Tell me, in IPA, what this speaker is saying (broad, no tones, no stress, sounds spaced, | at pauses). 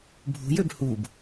bʱ ṳ j ø b h u b